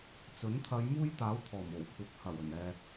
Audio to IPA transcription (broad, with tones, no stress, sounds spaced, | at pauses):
t͡s ɵ˨˥ n t̪ʰ ɐ˨˧ j m uː˥ j t̪ aː˨˥ w t̪ʰ ɔː˨˩ m o˨˩ w kʷʰ ɐ˨˥ k̚ h ɐ˨˩ w ɵ˨˩ n ɛː˨